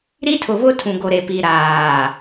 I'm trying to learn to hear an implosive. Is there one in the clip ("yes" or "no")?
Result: no